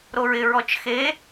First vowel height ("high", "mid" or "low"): mid